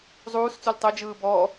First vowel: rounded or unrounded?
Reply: rounded